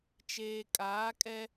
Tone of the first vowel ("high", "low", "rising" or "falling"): low